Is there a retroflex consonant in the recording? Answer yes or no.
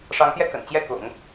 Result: yes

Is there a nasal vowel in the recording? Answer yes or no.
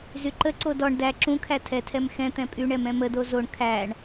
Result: yes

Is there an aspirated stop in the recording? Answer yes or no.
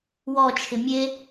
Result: yes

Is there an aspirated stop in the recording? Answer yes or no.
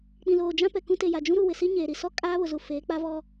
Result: no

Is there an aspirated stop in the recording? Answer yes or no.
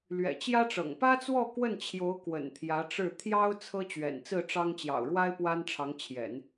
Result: yes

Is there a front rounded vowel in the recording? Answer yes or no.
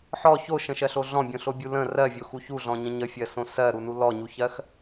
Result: no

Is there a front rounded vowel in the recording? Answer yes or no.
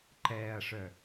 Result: yes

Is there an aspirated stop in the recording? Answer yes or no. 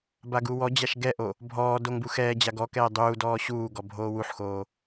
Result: no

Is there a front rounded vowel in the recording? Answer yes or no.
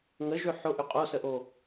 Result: yes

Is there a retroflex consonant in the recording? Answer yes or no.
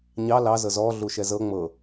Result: no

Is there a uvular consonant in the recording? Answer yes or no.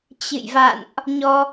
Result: no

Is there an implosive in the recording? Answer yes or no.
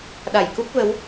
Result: yes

